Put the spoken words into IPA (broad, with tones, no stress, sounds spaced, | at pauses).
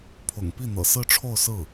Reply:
pʰ ʊ̰˨˩ ŋ p i˥˩ n̪ ɤ̰˨˩ s ɹ̩˥˧ ʈ͡ʂʰ o˥˧ ʊ̯ s ɹ̩˥˩